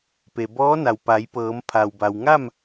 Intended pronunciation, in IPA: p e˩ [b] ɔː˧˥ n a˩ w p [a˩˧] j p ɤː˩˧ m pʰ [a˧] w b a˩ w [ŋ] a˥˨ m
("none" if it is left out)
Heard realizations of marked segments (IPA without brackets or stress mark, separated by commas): b, a˩˧, a˩, ŋ